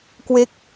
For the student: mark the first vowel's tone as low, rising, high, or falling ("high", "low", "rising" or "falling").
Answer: falling